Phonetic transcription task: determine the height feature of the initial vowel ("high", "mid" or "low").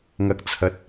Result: low